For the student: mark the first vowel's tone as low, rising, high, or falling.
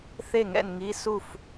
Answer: falling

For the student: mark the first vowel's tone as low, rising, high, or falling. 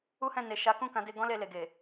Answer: high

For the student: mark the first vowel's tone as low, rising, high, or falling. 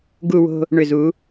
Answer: falling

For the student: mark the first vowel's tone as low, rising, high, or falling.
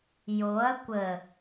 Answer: rising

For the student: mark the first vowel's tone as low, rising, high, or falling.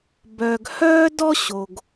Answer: low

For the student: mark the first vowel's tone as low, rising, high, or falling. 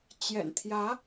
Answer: low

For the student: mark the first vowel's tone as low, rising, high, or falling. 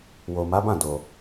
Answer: low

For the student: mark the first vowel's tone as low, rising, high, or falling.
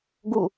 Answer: falling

